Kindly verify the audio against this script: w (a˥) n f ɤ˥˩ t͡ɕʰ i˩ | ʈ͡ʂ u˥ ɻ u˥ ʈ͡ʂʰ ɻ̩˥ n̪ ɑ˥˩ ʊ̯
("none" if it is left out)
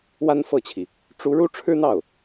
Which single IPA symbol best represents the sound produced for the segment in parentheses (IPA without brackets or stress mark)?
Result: a˥